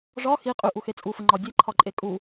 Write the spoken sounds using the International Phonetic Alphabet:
ʐ ɒ x i qʼ y ʔ u x e t͡sʼ u f ə ŋ͡ǃ ɒ dʲ e ǃʰ ɒ ǃʼ e kʼ u

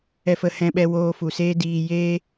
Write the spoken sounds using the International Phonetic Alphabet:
ɛ˧ f ə˧ h ɛ̃˧ ɓ ɛ˧ w oː˧ f u˨ s eː˦ d iː˧ j eː˦

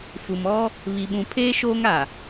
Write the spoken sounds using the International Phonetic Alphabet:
f u˨ m ɔ˦ | β i˨ ɓ ũ˨ pʰ eː˦ ʃ oː˦ ŋ a˨

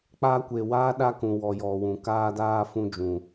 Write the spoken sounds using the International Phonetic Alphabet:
k͡p a˧ kʷ e˨ w aː˦ ɗ a˦ k ũ˨ w ɔ˨ j ɔ˨ w ũ˨ k aː˧ d aː˧ f ũ˧ d͡ʒ ũ˨

